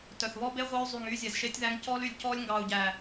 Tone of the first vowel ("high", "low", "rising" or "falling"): low